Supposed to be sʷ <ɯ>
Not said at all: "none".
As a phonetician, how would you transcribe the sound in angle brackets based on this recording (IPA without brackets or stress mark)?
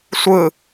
ɯ